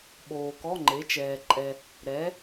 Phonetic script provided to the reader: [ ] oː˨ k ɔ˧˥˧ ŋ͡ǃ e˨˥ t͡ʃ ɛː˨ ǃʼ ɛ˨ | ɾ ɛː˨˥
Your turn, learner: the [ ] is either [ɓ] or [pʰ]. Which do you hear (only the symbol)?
ɓ